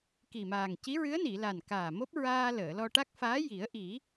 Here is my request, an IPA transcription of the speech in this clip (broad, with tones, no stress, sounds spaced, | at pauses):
k i˨˩ m aː˨˩ ŋ c i˧˥ ɹ ɨ˧˥ ə̯ n i˨˩˨ l a˨˩ n k aː˨˩ m o˦˥ p̚ ɹ aː˧ l əː˨˩˨ l ɔ˧ ʈ a˦˥ k̚ f aː˧˥ j i˨˩˦ ə̯ ʔ i˨˩˦